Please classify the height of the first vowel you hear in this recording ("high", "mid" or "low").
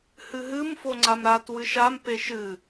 high